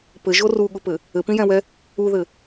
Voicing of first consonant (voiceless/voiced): voiceless